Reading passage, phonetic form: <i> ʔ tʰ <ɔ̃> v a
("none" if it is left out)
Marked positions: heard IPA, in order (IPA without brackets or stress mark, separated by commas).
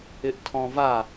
ɪ, ɔ̃